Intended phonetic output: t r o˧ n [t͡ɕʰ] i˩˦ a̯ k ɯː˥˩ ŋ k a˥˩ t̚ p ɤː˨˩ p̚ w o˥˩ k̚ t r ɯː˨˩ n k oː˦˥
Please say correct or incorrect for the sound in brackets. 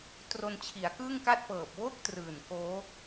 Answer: correct